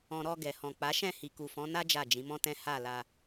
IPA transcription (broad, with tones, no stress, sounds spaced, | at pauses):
ɔ̃˨ ɾ ɔ˧ ɡ ɛ˨ h ɔ̃˨ k͡p a˨˦ ʃ ɛ̃˦˨ h i˨ k u˨ f ɔ̃˨˦ n a˦ d͡ʒ a˦˨ d͡ʒ ĩ˨˦ m ɔ̃˦ t ɛ̃˦ h a˦˨ l a˧